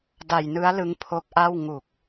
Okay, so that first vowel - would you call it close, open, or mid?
open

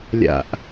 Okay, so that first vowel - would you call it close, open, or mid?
open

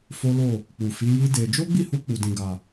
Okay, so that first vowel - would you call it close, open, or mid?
mid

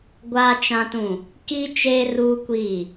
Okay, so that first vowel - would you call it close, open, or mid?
open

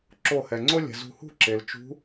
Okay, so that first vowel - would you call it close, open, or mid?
mid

